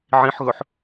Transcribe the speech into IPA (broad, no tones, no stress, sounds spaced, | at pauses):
ʕ ĩ ħ ɣ ɵ ħ